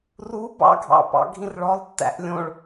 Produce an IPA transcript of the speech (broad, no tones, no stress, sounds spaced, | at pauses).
r u b ɑ̰ ɡʱ ɑ̰ p ɑ̰ ɡʱ ĩ r ɭ ɔ lˠ tː æ̰ ʔ lʲ õ ɭ